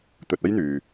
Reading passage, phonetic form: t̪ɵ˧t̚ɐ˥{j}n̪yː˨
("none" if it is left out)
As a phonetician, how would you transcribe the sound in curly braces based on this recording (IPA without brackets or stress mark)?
j